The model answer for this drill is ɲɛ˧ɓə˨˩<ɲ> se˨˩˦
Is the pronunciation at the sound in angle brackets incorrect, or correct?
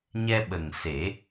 incorrect